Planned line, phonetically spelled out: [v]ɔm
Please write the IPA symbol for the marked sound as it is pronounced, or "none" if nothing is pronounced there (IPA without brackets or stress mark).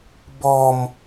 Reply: b